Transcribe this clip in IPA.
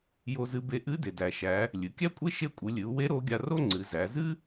j o˧ z ɨ˧˥ b e˧˥ ʔ ɨ˧˥ d e˩ d æ˩ ʃ æ˩˧ | lʲ ɨ˩˧ kʲ æ˥ kʷʼ e˥ ʃ e˧ kʷʼ ɨ˩˧ lʲ ɨ˩˧ u̯ w e˧˥ ɾ o˧˥ ɡʲ a˧ r o˥ ŋ͡ǀ ɨ˩˧ z æ˩˧ z ɨ˥

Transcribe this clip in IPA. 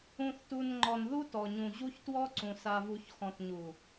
ũ˨ θ t u˨ n ŋ͡ǃ ɔ˨ n ð u˦ t ɔ˨ ɲ ũ˨ ʑ u˦ ç t w ɔ˦ ǀ ũ˨ s a˨ v u˨ ç x ɔ̃˨ t ɲ u˨

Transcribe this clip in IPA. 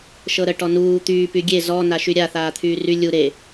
ʃ ɤ ɾ ə ʈ ɔ n uː t̪ yː p y ɡʲ e z ɔ n a ʃ y ɾʲ a θ aː t̪ʰ yː r y lʲ u ɾ e

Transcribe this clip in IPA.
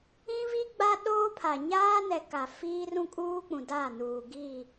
ĩ˦ v i˦ ɡ͡b a˦ ɗ oː˦ pʰ a˨ ɲ aː˦ n ɛ˨ k a˨ f iː˦ r ũ˦ kʼ uː˦ k͡p ũ˨ d a˦˨ n uː˨ ɡ i˦˨

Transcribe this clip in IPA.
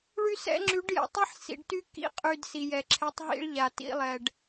ɭ y˦ s ɛ̰˦ ŋ͡ǁ y˨˦ ɖ j ɛ̰˨ tˤ i˦ ħ s ḭ˨ ɖ t y˦ k ḭ˦ qʼ y˨ d s i˨ j ɛ˨ ǁʰ ɛ˨˦ tˤ ɦ ḭ˦ ɭ ʎ a˨ t ḭ˦ lˠ ɛ˨ ɖ

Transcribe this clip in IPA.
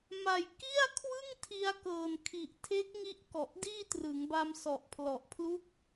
m a˨˩ j k i˥˩ a̯ kʰ w ɯ˥˩ ŋ tʰ i˧ a̯ k ɤː˨˩ n kʰ i˨˩ ʔ tʰ e˦˥ k̚ ŋ i˦˥ ʔ k ɔ˨˩ ʔ d iː˥˩ t r ɯ˩˦ ŋ b a˧ m s ɔ˨˩ ʔ pʰ l ɔ˨˩ ʔ pʰ l u˦˥ k̚

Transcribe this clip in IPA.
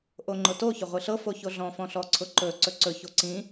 ʔ o ŋ͡ǃ ʊ t o ç ʊ ʁʷ i ɬ ɤ f o ç o ɮ ɔ̃ f ɔ̃ ɬ ɔ ǀʰ ʊ ǃ ɵ ǀ ɵ ǀ ɵ ç o ǀ ĩ

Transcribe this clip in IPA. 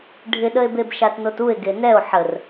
ɖʱ ɪ ɗ ə e̯ b e b ʃ a t n o t u e̯ ɡ e n ɛ o̯ ħ ə r

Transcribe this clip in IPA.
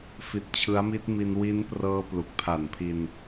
f i˦˥ t̚ t͡ɕʰ ɯ˦˥ a̯ m i˦˥ t̚ m i˧ n w i˦˥ n p r ɤː˧ p l u˨˩ k̚ pʰ a˨˩ n pʰ i˧ n

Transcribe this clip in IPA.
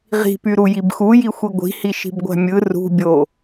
ʁ i̤ p y ɾ u j i b x u j i xʷ i ɡʷ i̤ h i ʃ i̤ b ɡʷ æ̤ mʲ ɯ r ṳ bʲ o

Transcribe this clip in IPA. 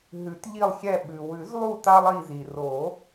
ɦ ʉ˨˩˦ t ʎ i˦˨ lˠ xʲ ɛ˦˨ ɓ ʉ˩ w ʉ˨˩˦ z lˠ u˦˨ t a˥ lˠ i˦˨ z i˩ r o˨˩˦

